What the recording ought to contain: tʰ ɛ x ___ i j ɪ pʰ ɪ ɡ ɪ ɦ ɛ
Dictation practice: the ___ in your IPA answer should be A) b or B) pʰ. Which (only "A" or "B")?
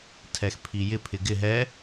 B